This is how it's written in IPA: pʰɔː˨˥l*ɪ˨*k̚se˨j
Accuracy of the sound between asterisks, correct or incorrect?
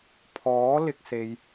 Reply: correct